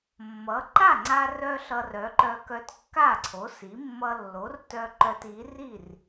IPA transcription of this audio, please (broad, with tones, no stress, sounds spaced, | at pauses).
mː ʌ˩˥ ǃ a˥˩ ŋ͡ǀ a˧ r œ˧ ɬ ʌ˧ r œ˩˥ ǃ œ˧ k œ˧ t kː a˥˩ ǀʰ o˩˥ s i˩˥ mː ʌ˧ lː o˩˥ r t œ˧ ǃ œ˧ t i˩˥ r i˥˩ r